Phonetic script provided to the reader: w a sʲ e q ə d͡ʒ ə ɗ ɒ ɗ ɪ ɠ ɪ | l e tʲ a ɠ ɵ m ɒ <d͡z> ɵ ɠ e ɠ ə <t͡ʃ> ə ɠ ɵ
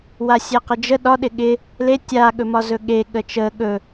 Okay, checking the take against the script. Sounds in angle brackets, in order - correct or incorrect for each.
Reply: incorrect: z, correct

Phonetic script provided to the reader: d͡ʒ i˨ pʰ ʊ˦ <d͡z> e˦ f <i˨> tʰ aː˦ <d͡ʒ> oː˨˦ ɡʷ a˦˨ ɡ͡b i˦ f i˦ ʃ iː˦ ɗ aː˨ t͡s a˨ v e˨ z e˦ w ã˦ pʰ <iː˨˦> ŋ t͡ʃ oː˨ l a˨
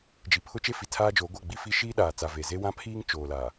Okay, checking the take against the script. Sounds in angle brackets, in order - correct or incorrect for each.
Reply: incorrect: t͡ʃ, correct, correct, incorrect: iː˦

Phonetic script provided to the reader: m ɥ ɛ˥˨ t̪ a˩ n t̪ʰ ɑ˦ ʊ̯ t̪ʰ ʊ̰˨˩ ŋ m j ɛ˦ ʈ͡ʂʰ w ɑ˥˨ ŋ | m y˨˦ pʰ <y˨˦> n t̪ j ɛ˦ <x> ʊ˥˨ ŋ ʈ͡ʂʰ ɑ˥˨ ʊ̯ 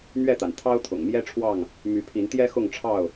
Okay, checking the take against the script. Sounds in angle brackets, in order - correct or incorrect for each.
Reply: incorrect: i˨˦, correct

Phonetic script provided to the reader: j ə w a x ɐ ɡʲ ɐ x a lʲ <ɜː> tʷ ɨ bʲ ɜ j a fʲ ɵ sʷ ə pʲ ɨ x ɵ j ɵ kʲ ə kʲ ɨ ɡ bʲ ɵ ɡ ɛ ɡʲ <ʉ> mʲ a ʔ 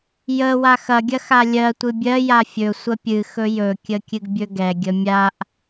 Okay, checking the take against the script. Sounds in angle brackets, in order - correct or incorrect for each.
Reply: incorrect: ɜ, incorrect: ə

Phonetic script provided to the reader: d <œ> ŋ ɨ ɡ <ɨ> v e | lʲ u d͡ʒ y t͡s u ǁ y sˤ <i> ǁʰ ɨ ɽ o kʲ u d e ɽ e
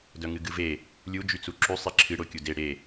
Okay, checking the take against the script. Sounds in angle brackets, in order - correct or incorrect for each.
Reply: correct, correct, correct

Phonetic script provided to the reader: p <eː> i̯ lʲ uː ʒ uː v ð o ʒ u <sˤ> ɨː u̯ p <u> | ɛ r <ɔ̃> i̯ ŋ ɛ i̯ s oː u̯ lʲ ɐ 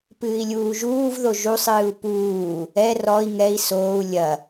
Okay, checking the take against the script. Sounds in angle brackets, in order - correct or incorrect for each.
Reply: incorrect: ɨː, correct, incorrect: uː, incorrect: ɔ

